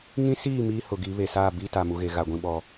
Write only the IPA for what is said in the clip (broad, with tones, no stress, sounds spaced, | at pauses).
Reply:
ŋ ĩ˦ s iː˦˨ m iː˦ h ʊ˨ ɡ i˨˦ β e˨ s aː˦˨ b i˦ t a˨ m u˨ ɣ e˨ ɣ a˨ ɡʷ ĩ˦ ɓ ɔ˦